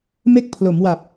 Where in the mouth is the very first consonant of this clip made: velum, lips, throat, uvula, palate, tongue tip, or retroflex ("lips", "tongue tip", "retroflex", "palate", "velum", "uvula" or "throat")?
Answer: lips